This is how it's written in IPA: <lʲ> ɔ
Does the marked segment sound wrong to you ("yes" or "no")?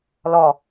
yes